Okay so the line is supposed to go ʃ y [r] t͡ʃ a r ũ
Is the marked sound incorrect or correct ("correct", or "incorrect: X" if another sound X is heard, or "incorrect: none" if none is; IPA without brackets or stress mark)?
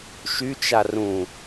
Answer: incorrect: none